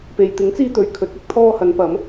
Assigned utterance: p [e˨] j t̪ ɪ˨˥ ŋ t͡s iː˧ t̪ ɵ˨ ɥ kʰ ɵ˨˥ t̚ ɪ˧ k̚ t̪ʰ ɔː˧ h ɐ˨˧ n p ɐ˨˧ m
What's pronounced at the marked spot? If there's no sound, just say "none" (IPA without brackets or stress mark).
e˨